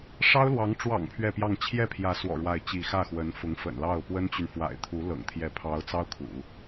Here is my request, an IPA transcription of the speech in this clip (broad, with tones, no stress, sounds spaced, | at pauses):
ʂ ɑ˥ ʊ̯ l w ɑ˧˥ ŋ ʈ͡ʂ w ɑ̰˨˩ ŋ pʰ ɥ ɛ˥˧ p j ɑ˥˧ ŋ t͡ɕʰ j ɛ˥˩ pʰ j ä˧˥ s w ɔ̰˨˩ ɻ w a˥˧ ɪ̯ t͡ɕ i˥˧ x ä˥˩ x w ə˧˥ n f ʊ˧˥ ŋ f ə̰˨˩ n l ɑ˥˩ ʊ̯ p w ə˥ n t͡ɕ y˨ n f w a̰˨˩ ɪ̯ t̪ʰ u˧˥ l ɤ̰˨˩ ŋ t̪ʰ j ɛ˧˥ pʰ ɑ˧˥ ʊ̯ t͡s ɑ˥ ʊ̯ kʰ ṵ˨˩˦